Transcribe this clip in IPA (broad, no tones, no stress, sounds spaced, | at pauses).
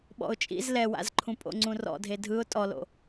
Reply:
ɓ ɔ̰ ʊ̯ t͡ʃʼ ḭ z l ɛ w a̰ z ǃʰ ũ pʼ o̰ ŋ͡ǀ ũ r ɔ̰ dʱ e dʱ ɯ ʊ̯ tʼ ɔ l o̰